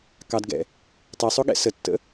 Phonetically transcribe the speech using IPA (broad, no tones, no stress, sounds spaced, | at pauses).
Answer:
k ɑ d ɡ ɛ̰ | tˤ e sˤ o ɠ ɛ̰ s ə tː ə̰